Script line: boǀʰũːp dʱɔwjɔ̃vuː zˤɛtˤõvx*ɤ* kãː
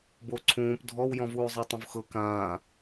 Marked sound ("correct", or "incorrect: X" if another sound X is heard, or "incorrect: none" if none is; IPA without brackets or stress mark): correct